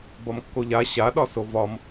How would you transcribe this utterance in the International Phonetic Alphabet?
bɒmkːoʎa ɕaɗɒ sovɒm

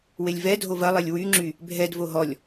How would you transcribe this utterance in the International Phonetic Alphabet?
welʲvɛdʱo vɐlˠɛlʲ wyŋ͡ǁy | bʱɛdvo ɦɔlʲ

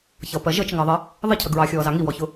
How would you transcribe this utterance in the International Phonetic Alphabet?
çʌpɜ ʒət͡ʃŋɑðˤɜ | ðˤɪcʰə ɡɹɑxʲɔːzɑ ŋiwɔçʊ

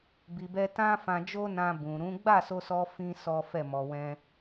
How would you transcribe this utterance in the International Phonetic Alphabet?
bi˨bɛ˧tã˦ fã˧d͡ʒo˦nã˧ bũ˨ ɾũ˨˦ ɡ͡ba˦˨so˧sɔ˧ fĩ˦sɔ˦fɛ˦˨ mɔ˨wɛ̃˧

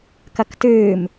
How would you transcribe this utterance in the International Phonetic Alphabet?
kɐktɨːm

